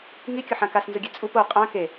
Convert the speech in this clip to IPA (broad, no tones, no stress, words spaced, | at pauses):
ŋikʲʊħã kasnzʊɡʲɛ t͡sʼup o qʼã ke